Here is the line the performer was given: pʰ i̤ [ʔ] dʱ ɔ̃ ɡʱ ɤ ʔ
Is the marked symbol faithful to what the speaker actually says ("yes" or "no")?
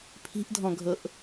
yes